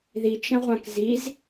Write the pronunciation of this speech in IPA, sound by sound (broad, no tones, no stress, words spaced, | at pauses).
ðit͡ʃɐ̃ʁʷãk ziz